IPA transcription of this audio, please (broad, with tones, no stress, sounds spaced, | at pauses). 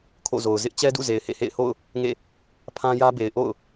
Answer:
kʰ o̰˦˨ z o˨ ʊ̯ z ɪ˦ ʔ t͡ɕ ɛ˦ d ṵ˦˨ z e˨ ɪ̯ h ḛ˦˨ h ḛ˦˨ ɪ̯ h o̰˦˨ ʊ̯ | ŋ ḛ˦˨ | pʰ ã˦ j ä˦ b e˨ ɪ̯ ʔ o̰˦˨ ʊ̯